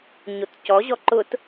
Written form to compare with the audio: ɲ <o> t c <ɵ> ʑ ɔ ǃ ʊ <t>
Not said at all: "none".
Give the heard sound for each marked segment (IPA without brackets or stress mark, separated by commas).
o, ɔ, t